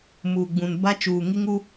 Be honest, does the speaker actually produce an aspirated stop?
no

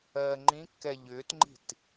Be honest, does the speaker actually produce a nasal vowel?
yes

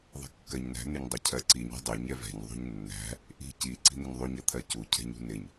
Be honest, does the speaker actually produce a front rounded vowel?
no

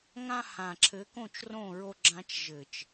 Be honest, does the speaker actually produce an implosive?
no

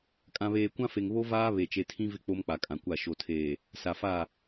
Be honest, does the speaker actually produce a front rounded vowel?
no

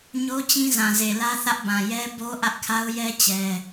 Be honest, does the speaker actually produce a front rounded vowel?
no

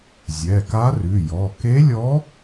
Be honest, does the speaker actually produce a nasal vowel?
no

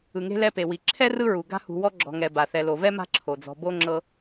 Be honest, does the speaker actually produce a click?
yes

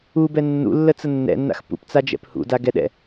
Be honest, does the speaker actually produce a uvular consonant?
no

